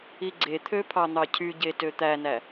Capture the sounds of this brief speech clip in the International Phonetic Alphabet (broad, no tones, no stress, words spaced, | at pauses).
iɡ͡ǀet̪ʰø pʰɑn̪ɑcʰyɟe tøt̪ænæ